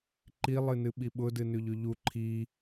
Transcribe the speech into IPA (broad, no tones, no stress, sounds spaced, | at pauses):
ǃ i lˠ ɨ n ɨ ɓ i ɓ ʊ d ɨ n ʉ ʎ ʉ ʎ u ǃʰ i